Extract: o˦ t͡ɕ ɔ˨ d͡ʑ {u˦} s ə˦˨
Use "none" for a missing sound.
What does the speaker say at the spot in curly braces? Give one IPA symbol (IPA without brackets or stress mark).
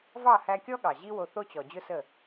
ʊ˦